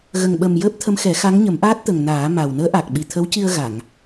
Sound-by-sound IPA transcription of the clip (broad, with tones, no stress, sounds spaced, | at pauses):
ɣ ə˨˩ ŋ ɓ ə˨˩ m j əː˦˥ p̚ t̪ʰ ə˧˥ m x ɛ˨˩˦ x a˧˥ ŋ ɲ ə˨˩˦ m ʔ aː˦˥ t̚ t̪ ə˨˩ ŋ n aː˨˩˦ m a˨˩ w n əː˧˥ ʔ a˨˩ k̚ ɓ i˨˩ t̪ʰ ə˧˥ w c i˧ ə̯ ɣ a˨˩˨ ŋ